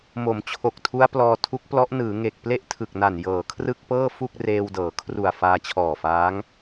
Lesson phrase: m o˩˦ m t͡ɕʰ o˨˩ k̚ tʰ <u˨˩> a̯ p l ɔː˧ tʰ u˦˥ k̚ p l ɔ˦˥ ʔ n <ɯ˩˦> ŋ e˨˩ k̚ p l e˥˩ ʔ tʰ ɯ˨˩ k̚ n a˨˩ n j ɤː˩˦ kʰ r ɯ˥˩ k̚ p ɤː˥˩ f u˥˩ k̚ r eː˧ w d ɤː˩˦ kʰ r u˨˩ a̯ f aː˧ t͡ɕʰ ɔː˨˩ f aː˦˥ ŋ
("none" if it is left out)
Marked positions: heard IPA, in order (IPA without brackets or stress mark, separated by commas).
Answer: u˦˥, ɯː˩˦